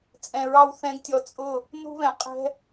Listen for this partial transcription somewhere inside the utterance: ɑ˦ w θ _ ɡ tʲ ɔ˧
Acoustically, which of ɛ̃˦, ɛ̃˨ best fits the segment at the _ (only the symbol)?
ɛ̃˦